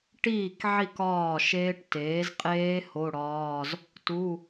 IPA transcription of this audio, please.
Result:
ʈ iː˥˩ k ʕ i˥˩ k ɒː˥˩ ʃ eː˦˥ ʈ t eː˩˥ z qʼ eː˦˥ h o˧˥˧ ɽ ɒː˧˥˧ z | t u˧˥˧

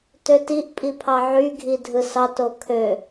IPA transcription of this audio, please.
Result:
t ø t i ʔ pʼ i pʰ ɑ ʕ y ɡʱ i dʱ ɯ s ɑ t o kʰ ø

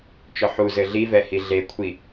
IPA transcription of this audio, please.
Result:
t͡ʃ ɔ ħ u z ɘ ɮ i v ɛ h i ɮ e kʷʰ i

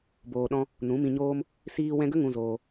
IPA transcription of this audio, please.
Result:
b oː˧ ɗ ɔ̃˦ | n ũ˨˦ m ĩ˧ ɲ oː˦ m | s iː˧ w ɛ̃˧ ɡ ə˦ ŋ ũ˧ z oː˧

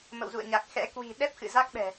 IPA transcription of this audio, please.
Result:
m ə̰˧˨ w z ṵ˧˨ ə̯ ɲ a˨˩ k̚ x ɛ̰˧˥ k w i̤˨˩ ɗ ɛ˦˥ p̚ x ɨ̰˧˨ z a˦˥ k̚ ɓ ɛ̤˨˩

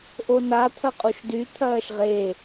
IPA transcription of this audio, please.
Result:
ʔ o n a t̪ʰ ɐ qʼ u ʃ d y t̪ʰ ɐː ʃ ʁ e

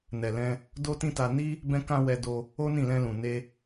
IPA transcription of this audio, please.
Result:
n ɛ˨ l ɛ̃˧ | d o˦ t ĩ˦ t a˧ n i˦ | b ɛ̃˧ k ã˧ w ɛ˧ d o˧ | o˦ n ĩ˦˨ l ɛ̃˧ l ũ˨ n e˧

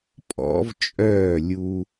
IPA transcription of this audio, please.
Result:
pʼ ɔ̰˩˥ v t͡ʃʼ œː˥˩ lʲ u˧

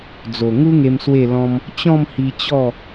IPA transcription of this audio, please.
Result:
d͡z o˨˩ ŋ u˦ ŋ e˧ m s w e˥˧ l ɔ̃˦ m | t͡ɕ ɔ̃˥˧ m h i˧ t͡ɕ ɔ˥˧

